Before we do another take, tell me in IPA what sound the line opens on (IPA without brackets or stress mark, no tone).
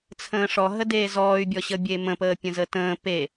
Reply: t͡sʰ